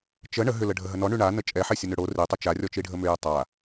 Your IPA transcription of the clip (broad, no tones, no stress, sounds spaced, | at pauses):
t͡ʃ ə ɳ ə ɦ ʏ l ə ɖʱ ə ɦ ə n ɔ ɳ y ɳ a n ə t͡ʃʼ ɛ ħ e sʲ ə n ʏ ɽ o r i tˤ ʏ t͡ʃ a rʲ ɔ t͡ʃ i ɖʱ ə m ʏ j ə tˤ a